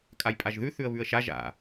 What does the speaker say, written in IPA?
kʼ a j pʼ a ʒ ð ʉ θ ʉ ə̯ β ʉ ə̯ ʃ a ʒ a̰

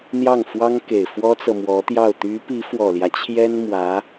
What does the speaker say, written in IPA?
n̪ j ɑ˥˩ ŋ f w ɑ˥ ŋ k e˨˩ ɪ̯ f w ɔ˥ t͡s ɤ˨ m w ɔ˧˥ t̪ j ɑ˥˩ ʊ̯ t̪ y˧˥ p i˧˥ f w ɔ˨˩ l j ä˦ t͡ɕʰ j ɛ˥ n m w ä˧˥

